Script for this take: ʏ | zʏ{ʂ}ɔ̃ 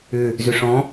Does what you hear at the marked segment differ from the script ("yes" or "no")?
no